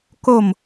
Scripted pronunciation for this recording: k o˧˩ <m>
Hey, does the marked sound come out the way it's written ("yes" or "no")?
yes